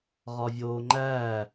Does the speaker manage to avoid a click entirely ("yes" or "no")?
no